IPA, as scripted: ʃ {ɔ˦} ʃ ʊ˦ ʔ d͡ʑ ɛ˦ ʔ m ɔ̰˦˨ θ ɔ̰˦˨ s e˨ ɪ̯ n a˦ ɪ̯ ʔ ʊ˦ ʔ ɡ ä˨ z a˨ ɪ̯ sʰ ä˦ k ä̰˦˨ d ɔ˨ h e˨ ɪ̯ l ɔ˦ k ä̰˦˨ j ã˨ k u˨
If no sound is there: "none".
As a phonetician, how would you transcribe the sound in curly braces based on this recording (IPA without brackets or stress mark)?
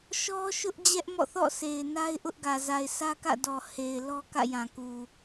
ɔ˦